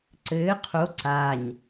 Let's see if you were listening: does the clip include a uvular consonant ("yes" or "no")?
yes